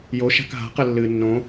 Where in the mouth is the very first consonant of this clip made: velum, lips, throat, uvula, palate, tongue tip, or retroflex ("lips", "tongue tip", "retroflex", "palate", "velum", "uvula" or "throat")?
palate